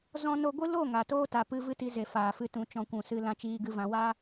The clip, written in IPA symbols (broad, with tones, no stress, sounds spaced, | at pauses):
z ɔ̃˦ n o˧ ɡʷ ɨ˦ l o˦˨ ŋ a˨ t oː˦ t a˨ p ɨ˧ v ɨ˦ t i˧ z e˨ f aː˨ f ɨ˧ t ũ˨ t͡ʃ ɔ̃˧ kʷ ũ˨ s ɨ˧ l ã˧ t͡ʃ iː˧ ɡ ɨ˧ v ã˧ w a˧